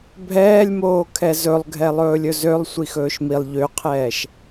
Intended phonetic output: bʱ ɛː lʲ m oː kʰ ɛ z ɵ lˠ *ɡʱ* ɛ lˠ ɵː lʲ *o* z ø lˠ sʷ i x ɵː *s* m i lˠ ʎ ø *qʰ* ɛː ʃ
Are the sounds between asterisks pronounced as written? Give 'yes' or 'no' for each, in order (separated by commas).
yes, no, no, yes